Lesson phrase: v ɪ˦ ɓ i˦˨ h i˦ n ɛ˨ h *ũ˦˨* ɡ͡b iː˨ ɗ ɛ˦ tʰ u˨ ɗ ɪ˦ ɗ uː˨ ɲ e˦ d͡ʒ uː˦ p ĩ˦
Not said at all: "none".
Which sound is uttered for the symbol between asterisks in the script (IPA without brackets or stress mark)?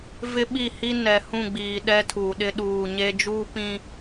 ũ˦˨